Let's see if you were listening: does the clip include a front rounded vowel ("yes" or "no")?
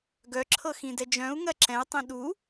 yes